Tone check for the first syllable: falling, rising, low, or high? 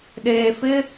low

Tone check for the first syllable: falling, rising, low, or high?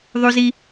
high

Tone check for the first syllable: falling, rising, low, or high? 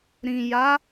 low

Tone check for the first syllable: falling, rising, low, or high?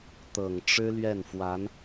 low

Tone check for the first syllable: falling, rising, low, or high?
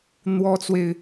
high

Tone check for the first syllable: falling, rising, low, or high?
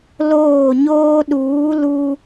falling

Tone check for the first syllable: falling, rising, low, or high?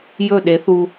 falling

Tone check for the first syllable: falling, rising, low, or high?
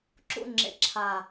falling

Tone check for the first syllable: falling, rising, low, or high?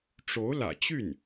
rising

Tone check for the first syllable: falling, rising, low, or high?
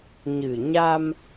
low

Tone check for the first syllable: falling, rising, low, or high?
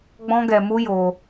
high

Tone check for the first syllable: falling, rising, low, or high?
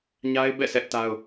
high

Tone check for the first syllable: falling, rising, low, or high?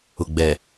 low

